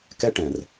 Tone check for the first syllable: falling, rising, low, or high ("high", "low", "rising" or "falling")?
high